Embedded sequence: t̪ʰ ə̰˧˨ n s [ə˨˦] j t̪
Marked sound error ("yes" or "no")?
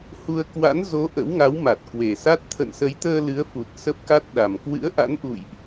no